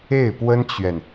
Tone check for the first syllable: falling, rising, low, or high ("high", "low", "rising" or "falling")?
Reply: falling